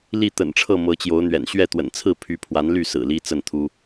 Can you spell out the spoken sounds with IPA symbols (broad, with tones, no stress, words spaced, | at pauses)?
li˥˨t̪ə̰˨˩nʈ͡ʂʰɤ˥˨ mɤ˨˦t͡ɕjo˨˦ʊ̯n̪ɥɛ̰˨˩n ɕɥɛ˥˨t̪wə̰˨˩nt͡sʰɹ̩˥˨ pʰy˨˦ pʰwa˨˦nly˥˨ sɹ̩˨˩li˦t͡sə˥˨nt̪ʰu˦